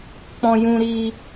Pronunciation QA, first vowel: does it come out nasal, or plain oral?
nasal